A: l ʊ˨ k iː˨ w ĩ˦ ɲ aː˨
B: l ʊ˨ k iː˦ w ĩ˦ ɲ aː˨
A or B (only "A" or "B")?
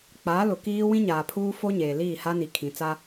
B